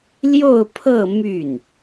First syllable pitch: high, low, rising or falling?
falling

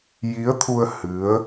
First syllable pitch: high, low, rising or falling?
rising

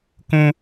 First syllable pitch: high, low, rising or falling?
high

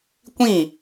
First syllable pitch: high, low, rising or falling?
falling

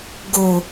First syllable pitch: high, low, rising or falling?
low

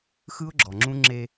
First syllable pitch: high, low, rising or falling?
high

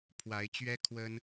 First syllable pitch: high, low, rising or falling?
rising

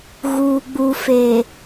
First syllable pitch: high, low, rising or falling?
low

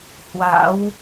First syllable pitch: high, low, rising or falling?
rising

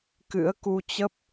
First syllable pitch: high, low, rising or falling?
rising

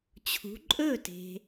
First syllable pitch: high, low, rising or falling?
rising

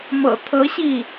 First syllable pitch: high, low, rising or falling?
low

